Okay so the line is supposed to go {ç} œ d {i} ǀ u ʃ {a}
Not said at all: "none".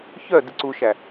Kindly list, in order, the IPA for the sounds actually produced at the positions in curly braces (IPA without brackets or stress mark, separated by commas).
ç, i, æ